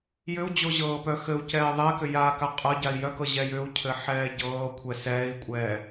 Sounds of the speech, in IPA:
j ʏ u̯ d͡ʑ o ʑ ɤː p œ x ɘ u̯ c ɛː ðˤ ɛ k ʏ j aː k a qʼ ɤ ɟ a i̯ j œ k ɤ ʑ ɛ j ʏ u̯ cʰ ɘ ħ ɛː ɟ ɤː kʷʰ ɛ s ɛː i̯ kʷʼ ɛː

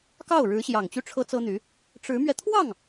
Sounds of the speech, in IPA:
k ɑ˥˩ ʊ̯ ɻ ɻ̩˧˥ ɕ j ɑ˨˩ ŋ t͡ɕ y˥˩ ʈ͡ʂʰ ɤ˥ t͡s ɤ˥ n̪ y˧˥ | ʈ͡ʂ ɻ̩˧˥ m ɥ ɛ˧ t̪ʰ w ɑ˥˩ ŋ

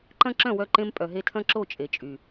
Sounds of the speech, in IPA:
ǃ ɐ̃˦ ǁ œ̃˦˨ w œ˧ ǃ ẽ˧ m pʼ œ˨ ɦ e˧ tʰ ɐ̃˦ ǁ o˦˨ t͡ʃʼ e˨ t͡ʃʼ y˨

